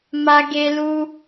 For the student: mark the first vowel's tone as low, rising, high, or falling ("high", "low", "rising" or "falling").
high